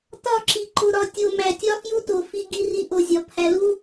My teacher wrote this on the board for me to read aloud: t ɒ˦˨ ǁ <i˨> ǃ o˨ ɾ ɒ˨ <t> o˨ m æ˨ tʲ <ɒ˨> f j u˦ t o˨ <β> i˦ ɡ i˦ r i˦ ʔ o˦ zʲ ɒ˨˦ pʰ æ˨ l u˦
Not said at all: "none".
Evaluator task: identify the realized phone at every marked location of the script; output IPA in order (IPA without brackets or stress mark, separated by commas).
i˨, tʲ, ɒ˦, f